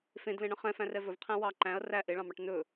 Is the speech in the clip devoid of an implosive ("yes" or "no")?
yes